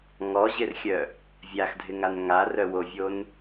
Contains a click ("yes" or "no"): no